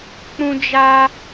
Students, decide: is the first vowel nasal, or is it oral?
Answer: nasal